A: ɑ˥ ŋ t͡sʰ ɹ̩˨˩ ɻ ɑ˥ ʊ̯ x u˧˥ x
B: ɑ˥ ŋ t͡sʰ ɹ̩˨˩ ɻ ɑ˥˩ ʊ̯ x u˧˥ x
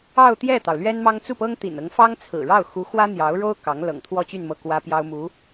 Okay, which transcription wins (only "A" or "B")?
B